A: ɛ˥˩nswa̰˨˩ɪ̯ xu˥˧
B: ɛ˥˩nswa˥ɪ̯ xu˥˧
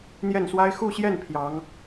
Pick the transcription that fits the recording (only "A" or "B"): B